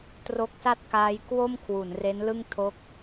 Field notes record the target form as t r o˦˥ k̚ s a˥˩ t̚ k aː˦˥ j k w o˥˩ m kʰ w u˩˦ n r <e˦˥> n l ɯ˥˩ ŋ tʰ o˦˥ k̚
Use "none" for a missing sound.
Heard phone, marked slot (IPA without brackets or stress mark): e˦˥